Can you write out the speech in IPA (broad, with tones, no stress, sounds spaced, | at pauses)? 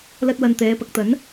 l ɐ˥ t̚ w ɐ˧ n t̪ ɛː˨˧ p ɐ˨ k̚ t̪ ɐ˨˥ n